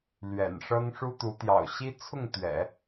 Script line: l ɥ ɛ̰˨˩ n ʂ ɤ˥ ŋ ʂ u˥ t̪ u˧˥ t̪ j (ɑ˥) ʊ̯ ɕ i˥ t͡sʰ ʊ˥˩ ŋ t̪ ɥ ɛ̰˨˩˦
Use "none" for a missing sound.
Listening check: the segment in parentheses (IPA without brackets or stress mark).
ɑ̰˨˩